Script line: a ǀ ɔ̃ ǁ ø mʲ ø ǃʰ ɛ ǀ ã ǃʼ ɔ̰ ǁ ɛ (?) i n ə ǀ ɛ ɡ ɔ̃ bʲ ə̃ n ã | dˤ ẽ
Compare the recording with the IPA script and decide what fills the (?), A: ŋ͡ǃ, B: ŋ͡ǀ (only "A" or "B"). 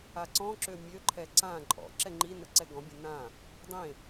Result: A